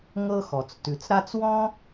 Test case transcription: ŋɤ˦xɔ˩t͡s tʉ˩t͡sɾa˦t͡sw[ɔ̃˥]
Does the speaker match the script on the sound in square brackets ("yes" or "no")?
yes